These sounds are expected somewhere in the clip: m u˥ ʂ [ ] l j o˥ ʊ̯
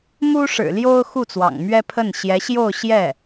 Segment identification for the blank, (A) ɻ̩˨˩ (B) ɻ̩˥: A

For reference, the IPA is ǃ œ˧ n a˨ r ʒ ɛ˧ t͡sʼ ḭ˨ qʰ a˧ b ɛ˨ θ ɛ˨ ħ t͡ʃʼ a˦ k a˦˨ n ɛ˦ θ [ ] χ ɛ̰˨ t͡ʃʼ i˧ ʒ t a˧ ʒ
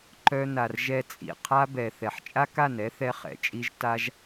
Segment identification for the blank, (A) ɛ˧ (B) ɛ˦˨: A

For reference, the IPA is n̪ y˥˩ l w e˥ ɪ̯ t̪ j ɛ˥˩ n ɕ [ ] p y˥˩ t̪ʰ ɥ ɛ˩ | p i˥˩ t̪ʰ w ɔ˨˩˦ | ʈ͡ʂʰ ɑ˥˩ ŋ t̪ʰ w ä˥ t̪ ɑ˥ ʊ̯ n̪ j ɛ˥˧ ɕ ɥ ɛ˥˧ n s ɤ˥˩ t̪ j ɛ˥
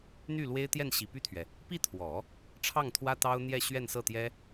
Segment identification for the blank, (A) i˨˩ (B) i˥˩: A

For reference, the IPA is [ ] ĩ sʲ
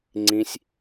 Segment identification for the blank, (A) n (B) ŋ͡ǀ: B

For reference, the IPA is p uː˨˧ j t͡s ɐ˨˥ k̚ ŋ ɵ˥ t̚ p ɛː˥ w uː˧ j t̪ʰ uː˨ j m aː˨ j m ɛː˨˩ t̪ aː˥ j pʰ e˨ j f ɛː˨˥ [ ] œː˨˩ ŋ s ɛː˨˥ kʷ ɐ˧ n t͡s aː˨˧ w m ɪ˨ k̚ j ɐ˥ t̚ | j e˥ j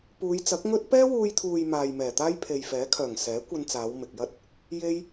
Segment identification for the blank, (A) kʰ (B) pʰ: A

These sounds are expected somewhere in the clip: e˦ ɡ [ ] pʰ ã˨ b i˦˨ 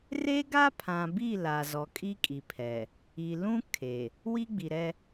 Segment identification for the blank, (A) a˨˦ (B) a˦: B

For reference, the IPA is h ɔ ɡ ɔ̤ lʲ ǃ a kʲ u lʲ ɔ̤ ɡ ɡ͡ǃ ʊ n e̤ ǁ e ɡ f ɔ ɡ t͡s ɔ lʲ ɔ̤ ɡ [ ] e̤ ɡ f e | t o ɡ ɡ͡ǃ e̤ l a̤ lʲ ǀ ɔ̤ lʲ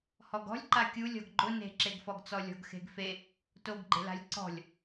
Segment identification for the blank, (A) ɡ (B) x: B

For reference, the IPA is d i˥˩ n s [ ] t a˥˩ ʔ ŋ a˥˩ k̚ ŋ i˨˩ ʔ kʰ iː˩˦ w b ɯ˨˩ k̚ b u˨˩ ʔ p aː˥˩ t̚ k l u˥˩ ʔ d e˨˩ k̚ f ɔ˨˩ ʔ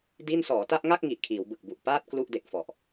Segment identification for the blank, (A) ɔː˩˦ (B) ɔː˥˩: A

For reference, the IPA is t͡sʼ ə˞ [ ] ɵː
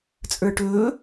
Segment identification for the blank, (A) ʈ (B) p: A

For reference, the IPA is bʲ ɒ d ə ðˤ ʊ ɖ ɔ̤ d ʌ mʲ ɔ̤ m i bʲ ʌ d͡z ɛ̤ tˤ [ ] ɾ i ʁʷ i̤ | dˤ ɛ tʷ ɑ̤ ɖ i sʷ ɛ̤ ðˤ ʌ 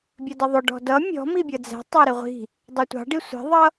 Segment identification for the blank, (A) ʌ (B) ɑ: B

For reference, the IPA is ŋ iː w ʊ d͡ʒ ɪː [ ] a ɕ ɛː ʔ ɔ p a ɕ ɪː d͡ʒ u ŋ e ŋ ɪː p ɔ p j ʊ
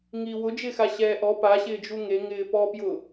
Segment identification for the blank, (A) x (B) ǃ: A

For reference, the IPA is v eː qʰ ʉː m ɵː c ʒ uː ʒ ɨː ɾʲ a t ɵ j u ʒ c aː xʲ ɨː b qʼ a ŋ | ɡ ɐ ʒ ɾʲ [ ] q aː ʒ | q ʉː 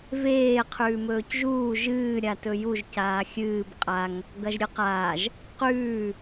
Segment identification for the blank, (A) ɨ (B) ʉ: A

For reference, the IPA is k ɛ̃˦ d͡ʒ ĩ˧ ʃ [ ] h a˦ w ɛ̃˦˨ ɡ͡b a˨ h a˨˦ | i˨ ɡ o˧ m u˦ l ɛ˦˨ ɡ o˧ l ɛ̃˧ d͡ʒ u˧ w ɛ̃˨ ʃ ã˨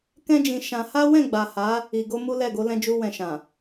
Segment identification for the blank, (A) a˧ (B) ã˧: B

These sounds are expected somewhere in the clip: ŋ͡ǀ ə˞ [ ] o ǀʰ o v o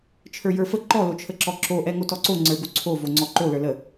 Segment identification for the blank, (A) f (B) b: B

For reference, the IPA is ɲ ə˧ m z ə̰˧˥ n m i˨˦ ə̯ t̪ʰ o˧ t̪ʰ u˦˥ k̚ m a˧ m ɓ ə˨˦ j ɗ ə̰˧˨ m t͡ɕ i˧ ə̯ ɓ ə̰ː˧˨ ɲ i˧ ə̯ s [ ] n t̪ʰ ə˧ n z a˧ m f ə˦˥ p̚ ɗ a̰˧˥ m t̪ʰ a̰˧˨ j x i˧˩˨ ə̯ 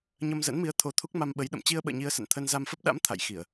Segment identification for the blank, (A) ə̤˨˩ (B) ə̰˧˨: B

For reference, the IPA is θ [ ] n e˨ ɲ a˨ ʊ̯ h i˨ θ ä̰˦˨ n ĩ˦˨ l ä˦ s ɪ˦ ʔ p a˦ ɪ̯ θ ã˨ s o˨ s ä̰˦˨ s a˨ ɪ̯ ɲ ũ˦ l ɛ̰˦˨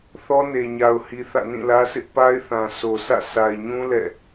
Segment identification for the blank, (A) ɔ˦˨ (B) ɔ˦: B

